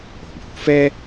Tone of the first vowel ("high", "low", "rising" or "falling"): low